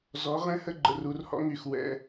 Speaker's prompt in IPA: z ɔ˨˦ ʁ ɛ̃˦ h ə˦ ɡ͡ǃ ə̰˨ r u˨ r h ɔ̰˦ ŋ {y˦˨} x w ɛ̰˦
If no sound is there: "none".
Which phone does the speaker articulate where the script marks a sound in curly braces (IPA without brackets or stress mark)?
y˦˨